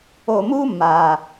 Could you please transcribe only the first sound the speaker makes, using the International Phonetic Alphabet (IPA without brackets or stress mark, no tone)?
o